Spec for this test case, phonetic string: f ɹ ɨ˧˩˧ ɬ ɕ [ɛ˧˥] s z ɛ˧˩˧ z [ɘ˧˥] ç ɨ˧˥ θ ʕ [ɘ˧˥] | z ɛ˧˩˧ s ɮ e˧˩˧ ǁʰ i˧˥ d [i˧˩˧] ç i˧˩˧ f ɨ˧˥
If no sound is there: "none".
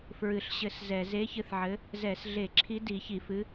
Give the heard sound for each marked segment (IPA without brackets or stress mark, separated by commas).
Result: ɘ˧˥, e˧˥, ɘ˧˥, i˧˩˧